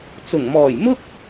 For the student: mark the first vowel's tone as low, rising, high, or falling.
low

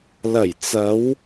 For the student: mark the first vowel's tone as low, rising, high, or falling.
low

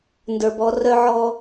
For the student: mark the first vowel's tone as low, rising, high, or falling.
low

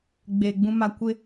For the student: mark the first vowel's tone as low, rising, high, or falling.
low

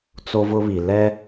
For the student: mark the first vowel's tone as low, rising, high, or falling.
high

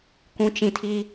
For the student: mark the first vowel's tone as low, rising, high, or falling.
low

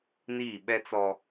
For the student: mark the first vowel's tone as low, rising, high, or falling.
falling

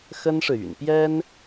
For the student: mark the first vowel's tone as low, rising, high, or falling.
high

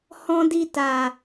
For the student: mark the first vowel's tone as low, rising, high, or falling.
high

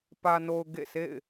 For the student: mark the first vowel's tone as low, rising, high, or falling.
low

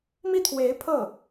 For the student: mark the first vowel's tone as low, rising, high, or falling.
falling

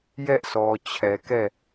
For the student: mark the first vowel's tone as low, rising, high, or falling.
high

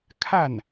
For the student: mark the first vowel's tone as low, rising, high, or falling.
falling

